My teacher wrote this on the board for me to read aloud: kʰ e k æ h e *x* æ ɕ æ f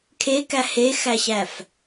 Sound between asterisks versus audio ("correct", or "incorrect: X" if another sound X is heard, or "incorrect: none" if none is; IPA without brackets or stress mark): correct